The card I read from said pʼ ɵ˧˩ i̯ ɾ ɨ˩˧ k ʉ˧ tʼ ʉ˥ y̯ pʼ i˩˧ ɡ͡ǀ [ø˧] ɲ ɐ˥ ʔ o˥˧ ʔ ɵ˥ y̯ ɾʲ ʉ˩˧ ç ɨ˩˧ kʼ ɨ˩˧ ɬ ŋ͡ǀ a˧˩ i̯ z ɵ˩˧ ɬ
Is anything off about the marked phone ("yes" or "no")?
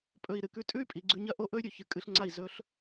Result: yes